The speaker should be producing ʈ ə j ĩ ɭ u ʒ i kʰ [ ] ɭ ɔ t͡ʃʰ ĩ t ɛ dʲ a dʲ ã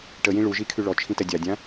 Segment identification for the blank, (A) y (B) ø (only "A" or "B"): A